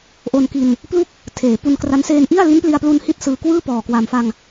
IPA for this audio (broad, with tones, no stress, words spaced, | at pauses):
ʔo˧nki˧n | plu˥˩k̚ | tʰeː˩˦pu˧nkra˦˥n seː˧nʔi˥˩a̯ li˦˥npli˧a̯plu˧n hi˥˩t̚sɯː˧ kwɯː˥˩pɔː˨˩kwa˨˩mfa˧ŋ